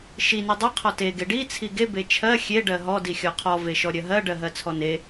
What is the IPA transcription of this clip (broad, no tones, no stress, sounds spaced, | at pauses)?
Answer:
ʃ i n i dˤ ɜ qʰ ɔ t e ɡ e ɖ i t͡sʰ i ɡ e b e t͡ʃʰ ɜ xʲ e ɖ ɜ ɦ ɔ d i xʲ ɔ qʰ ɔ v e ʃ ɔ ɾʲ ɜ ɦ ɜ ɖ ɜ ɦ ɜ t͡sʰ ɔ n e